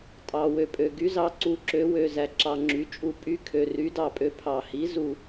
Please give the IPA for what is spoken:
tʼɑ˩wø˩ pʼø˩ɡy˩˥zɑ˩˥ ǀu˩˥ǁø˩˥ wø˩zæ˩ǁɑ˩ŋ͡ǁy˩ t͡ʃʼu˩pʼy˩˥ kʰø˩ry˩˥dɑ˩pʼø˩˥ pʰɑ˩hi˩˥ zu˩

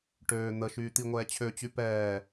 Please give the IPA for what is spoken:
ʈøː n̪əʃyː t̪iŋʷɛːt͡ɕʰøt͡ɕy pɛː

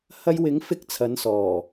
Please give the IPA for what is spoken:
hɐ˧jwɪ˨˥ŋfɪ˧k̚ t͡sʰɐ˨˥nsɔː˨˩

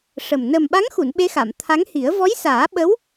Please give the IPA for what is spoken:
ʂə˨˩m nə˨˩mɓa˧˥ŋxu˨˩˨n ɓe˧˥xa˨˩˨mt̪ʰa˧˥ŋhi˨˩˦ə̯ vɔ˧˥jsaː˨˩˦ɓə˧˥w

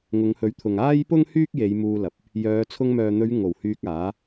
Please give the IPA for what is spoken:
ŋʊ˨˧ŋhɵ˨˥ɥt̪ʰʊ˨ŋ aː˥jpʊ˥ŋ hyː˥k̚je˨˧j muː˧lɐ˨p̚ | jœː˨˧t͡sʰʊ˧ŋ mœː˨ n̪ɵ˨˧ɥ ŋo˨˩w hyː˧k̚aː˨˥

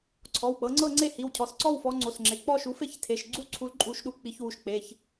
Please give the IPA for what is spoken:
ǀʰɔ˩˧˩wk͡pɤ˨˦ŋ͡ǀɤ˥˧ŋ͡ǀe˥˧ hi˩˧˩wcʰɔ˩˧˩sǀɔ˥˧w fɔ˨˦ŋ͡ǀo˩˧˩sŋ͡ǁe˩˧˩ k͡pɔ˥˧ʃu˨˦fe˥˧ç tʰe˩˧˩ʃɡ͡ǀu˥˧ǀʰu˨˦l ǃʼu˨˦ʃɗu˨˦ k͡pi˨˦çwu˩˧˩ʃk͡pe˩˧˩ç

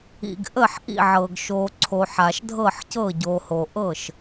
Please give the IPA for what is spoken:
ḭ˩ɡʔə˧˩ħʔḭ˧˩ʕɤ˩ɡ ʃo˩ ǀʰo˩ħa˩ʃdʱɤ˧˩ħcɤ˧˩ ɟo˩ho˩ʔɤ˧˩ʃ

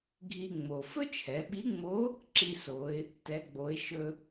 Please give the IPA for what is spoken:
ɡʱi˧ŋ͡mo˩ fɵ˥t͡ʃʰɛ˩˧ɓi˧˥ŋ͡mo˧˥ | ǁi˧so˩˧ɪ̯ | tɛ˩˧ɡ͡bo˩˧ɪ̯ ʃɵ˧

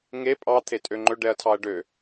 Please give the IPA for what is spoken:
ŋe pʼɑt̪ʰe tʼøŋ͡ǃɵɖɛɐ̯ tʰɑɐ̯ɖø

